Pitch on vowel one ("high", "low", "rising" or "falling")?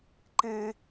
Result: high